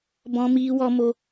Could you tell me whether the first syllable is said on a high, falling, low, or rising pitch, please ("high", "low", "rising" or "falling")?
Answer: high